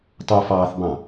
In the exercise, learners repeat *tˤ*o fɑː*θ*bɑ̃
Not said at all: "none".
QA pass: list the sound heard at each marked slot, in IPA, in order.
tˤ, θ

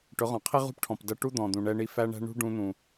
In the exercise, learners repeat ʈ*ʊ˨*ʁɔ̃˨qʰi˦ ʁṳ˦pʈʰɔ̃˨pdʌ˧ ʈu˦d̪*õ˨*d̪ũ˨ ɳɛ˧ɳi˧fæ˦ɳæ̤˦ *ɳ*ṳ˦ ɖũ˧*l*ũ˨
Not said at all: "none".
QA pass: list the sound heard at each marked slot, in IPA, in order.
ʊ˨˦, ɔ̃˨, ɳ, n̪

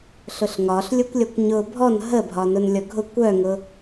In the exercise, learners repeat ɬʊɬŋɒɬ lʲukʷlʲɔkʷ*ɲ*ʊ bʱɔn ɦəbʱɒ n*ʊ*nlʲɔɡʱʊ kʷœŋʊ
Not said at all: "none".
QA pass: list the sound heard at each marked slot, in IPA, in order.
ɲ, ʊ

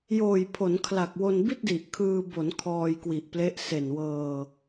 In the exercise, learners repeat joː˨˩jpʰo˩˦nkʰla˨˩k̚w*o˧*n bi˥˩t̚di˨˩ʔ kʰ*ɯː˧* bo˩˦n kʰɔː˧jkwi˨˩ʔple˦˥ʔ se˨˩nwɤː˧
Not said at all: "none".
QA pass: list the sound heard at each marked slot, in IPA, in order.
o˧, ɯː˧

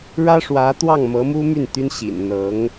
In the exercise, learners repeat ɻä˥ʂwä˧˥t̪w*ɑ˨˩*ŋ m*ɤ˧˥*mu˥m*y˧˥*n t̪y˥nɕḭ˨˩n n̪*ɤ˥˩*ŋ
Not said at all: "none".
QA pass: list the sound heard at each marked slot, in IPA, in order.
ɑ˥˩, ɤ˧˥, y˥˩, ɤ˧˥

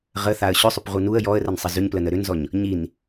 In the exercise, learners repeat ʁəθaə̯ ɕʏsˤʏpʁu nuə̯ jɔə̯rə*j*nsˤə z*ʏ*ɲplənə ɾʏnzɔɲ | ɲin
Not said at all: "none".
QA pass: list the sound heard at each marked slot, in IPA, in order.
none, ʏ

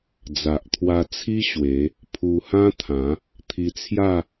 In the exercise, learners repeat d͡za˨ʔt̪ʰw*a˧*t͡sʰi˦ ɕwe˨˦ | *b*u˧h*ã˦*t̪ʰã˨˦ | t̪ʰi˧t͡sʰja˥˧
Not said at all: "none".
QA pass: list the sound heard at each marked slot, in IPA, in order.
a˧, pʰ, ã˦

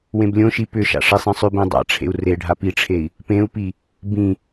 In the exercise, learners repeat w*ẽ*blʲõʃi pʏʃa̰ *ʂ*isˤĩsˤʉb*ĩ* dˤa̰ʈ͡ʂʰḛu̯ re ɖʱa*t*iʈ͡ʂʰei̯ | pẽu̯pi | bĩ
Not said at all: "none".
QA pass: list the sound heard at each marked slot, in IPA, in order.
ẽ, ʂ, ẽ, p

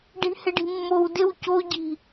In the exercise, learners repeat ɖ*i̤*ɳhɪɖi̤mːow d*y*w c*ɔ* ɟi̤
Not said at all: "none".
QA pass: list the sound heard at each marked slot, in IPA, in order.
i̤, ɪ, o

